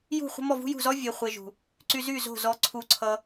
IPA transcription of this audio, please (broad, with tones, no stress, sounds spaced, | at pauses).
j ṳ˦˨ χʷ ə̤˦ m ɔ˦˨ v ṳ˦ j ṳ˦˨ z ɔ˦ vʲ e˨ χʷ e˨ ʒ ṳ˨ | ǀ y˧ z y˦˨ z o̤˦˨ z ɔ˧ ǀʰ u˧ ǀʰ ʌ˧